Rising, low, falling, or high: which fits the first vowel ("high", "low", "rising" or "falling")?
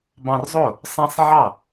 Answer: high